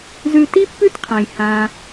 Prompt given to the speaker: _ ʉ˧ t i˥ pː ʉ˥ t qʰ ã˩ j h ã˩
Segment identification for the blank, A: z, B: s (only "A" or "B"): A